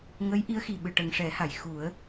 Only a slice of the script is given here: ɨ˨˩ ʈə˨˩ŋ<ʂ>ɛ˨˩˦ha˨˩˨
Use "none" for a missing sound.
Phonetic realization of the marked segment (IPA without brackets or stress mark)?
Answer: ʂ